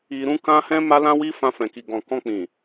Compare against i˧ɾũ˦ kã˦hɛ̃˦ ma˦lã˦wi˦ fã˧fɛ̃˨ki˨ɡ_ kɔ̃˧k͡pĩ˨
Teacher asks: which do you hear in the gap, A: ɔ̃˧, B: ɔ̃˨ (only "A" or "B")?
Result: B